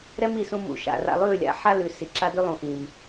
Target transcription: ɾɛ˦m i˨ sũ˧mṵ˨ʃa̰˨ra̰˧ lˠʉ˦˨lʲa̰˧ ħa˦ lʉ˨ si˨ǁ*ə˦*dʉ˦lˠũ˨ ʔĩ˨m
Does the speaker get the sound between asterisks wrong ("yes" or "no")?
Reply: yes